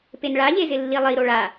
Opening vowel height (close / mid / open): mid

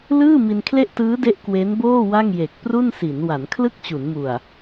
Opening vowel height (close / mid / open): close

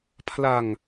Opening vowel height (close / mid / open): open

